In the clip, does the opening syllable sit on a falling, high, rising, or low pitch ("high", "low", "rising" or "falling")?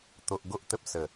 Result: low